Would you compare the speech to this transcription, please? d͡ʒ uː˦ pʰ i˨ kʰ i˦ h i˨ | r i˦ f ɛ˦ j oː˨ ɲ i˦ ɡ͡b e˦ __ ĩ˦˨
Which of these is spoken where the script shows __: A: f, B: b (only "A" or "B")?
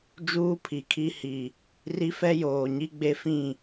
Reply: A